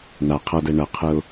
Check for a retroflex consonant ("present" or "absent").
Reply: present